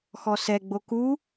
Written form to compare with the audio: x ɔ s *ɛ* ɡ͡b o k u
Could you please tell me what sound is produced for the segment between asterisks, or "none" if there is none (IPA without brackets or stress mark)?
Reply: ɛ